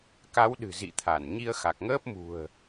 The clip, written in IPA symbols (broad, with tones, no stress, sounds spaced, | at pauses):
k a˨˦ w ɗ ɨ̤˨˩ z ḭ˧˨ t̪ʰ a˧˩ n ɲ i˧ ə̯ x a˨˩ k̚ ŋ əː˦˥ p̚ m ṳ˨˩ ə̯